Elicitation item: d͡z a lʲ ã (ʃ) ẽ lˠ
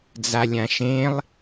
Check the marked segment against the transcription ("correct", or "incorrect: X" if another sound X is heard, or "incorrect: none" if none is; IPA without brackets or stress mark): correct